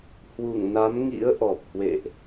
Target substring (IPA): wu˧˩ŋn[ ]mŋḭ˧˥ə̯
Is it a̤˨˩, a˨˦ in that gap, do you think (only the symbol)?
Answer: a˨˦